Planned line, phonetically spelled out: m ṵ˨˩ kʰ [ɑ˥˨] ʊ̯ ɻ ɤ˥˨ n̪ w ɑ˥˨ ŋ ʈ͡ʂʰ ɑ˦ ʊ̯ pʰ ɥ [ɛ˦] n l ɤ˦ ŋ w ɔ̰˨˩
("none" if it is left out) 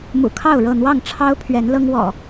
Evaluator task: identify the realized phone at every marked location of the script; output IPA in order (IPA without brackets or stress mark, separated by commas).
ɑ˥˨, ɛ˨˦